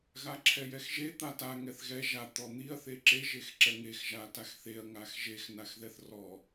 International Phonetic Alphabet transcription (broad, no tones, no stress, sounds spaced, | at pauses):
ɣ a ǁʰ ɛ j ɛ x ʒ e t̪ a t a ŋ ɛ θ ɣ ɛ ʒ a t̪ ɔ n̪ i ɐ̯ θ e ǁ e ʒ e x ǁ ɛ ŋ e x ʒ a t a x θ e ɐ̯ ŋ a x ʒ e x n a x ð ɛ θ r ɔ